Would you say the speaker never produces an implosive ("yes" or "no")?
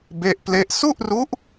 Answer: yes